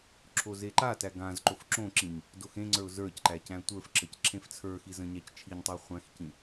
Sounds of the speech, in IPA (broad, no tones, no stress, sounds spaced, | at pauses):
ǁʰ o z e ǃ a t æ ɡ ã z ǃ o f ǁ õ ǁ ĩ ɲ | d o x ẽ ŋ͡ǀ ə˞ ʊ̯ z ə˞ c ǃ æ c æ̃ tʷ ə˞ f ǁ ə c ǁ ẽ f t͡sʰ ə˞ x i z ə̃ ɲ æ c t͡ʃʰ i ɲ tˤ ə ʊ̯ χʷ æ̃ x c ĩ